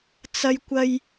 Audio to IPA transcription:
t͡sɐ˥jkʷɐ˥j

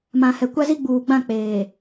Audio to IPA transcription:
mã˨hɛ˨kʷa˦zi˦ ɡ͡buː˨ɡ͡bã˦˨k͡peː˨

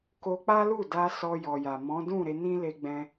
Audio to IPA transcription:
ko˧k͡pa˦lu˦˨da˧ sɔ˧jɔ˨ja˨ mɔ̃˨˦dũ˦˨ ɾe˧nĩ˦le˧ɡ͡bɛ̃˧

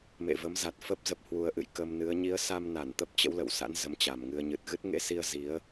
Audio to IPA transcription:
mḛ˧˨və˨˦mza˨˩t̚fə˦˥p̚ zə˨˩p̚hwu˨˩ə̯ʔɨ̰˧˨j kə˧mnɨ˨˦ə̯ ɲi˨˦ə̯sa˧mna˧˩n t̪ə˦˥p̚t͡ɕə̰˧˥wlə̰˧˨wsa̰˧˥n zə˨˦mt͡ɕa˨˩mŋɨ˧ə̯ ɲɨ˨˩t̚ɣɨ˦˥t̚ ŋḛ˧˥si˧ə̯ zi˨˦ə̯

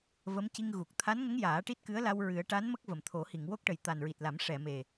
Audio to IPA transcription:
və˧˥mci˧ŋ ɣu˨˩k̚ t̪ʰa˧˥nŋə˧˥ŋ jaː˨˩˦ʈi˦˥t̚kɨ˧˥ə̯la˧w ɹɨ˨˩˦ə̯ʈa˧˥nmə˦˥k̚ və˨˩mt̪ʰo˨˩˦ hi˨˩˨ŋwo˦˥k̚ʈə˨˩j t̪a˨˩nɹi˨˩t̚la˨˩˦m ʂɛ˨˩˨me˨˩

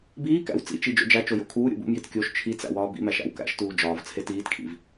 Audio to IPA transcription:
biːkæ̰w t͡sḭt͡ʃi d͡ʒo̰d͡ʒæt͡ʃo jo̰kʰuːɾʲo̰ bṵmjit kʲoʃ t͡ʃʰit͡sæ̰ wɒːbḭmæʃ æ̰wkæ̰ʃtuː d͡ʒɒːvt͡sʰe tiːtkʰḭv

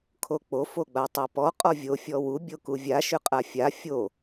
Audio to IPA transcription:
kʰok͡po foɡ͡batˤapɔ qʼɔvʲo fʲɔwu bʲokuvʲa ʃʏqʼafʲa fʲo

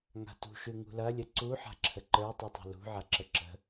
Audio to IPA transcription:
ŋa̤tṳʃʉ ŋṳlɐlʲə ǀuħa̤ǁʰə ǃə˞tˤʉtˤa̤ lṳʕaǁə ǁə̤

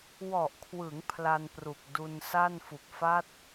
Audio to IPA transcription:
wɔ˨˩ʔkʰwɯ˩˦ŋ pʰla˧n pru˨˩k̚du˧n sa˥˩nfu˨˩k̚ fa˦˥t̚

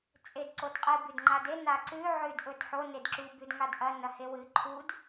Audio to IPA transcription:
t͡sʼedǀodqʼɨ bʉdŋ͡ǃade naǀʉ ʕʉd ʔɵdħo nedǁu bʉdŋadʔɐ nɐhewɨ ǃʰud

